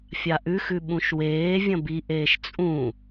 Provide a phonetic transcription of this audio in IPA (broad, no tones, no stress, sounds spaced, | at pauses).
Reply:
fʲ a ʔ ʉ x ʉ ɓ ũ ʃ w eː vʲ ɐ̃ b i ʔ eː ʃ t͡sʼ ũ